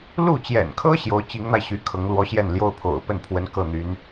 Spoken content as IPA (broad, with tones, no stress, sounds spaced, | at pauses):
l u˥˩ t͡ɕ j ɛ̰˨˩ n kʰ ɤ˥ ɕ j o˧˥ ʊ̯ t͡ɕ i˧˥ ŋ n̪ a˧ ɪ̯ ɕ y˧˥ kʰ ɤ˧˥ ŋ l w ɔ˧˥ ɕ j ɛ˥˩ n l j o˥ ʊ̯ pʰ o̰˨˩ ʊ̯ p ə˥˩ n pʰ w ə˧˥ n k ɤ˥˩ n̪ y˧˥ n